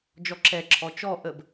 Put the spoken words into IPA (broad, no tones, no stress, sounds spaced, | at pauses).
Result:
d͡ʒ ɔ ǁ ɛ ǁʰ ɔ t͡ʃ ɔ ʔ ə b